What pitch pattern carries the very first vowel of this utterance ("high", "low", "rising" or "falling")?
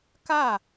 falling